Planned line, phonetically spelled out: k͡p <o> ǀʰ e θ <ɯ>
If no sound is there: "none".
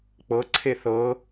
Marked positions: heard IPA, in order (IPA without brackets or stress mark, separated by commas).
ɤ, ɤ